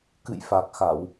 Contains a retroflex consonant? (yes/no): no